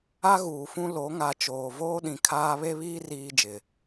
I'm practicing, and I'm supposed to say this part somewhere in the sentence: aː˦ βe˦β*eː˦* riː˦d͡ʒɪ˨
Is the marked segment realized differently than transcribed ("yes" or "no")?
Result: yes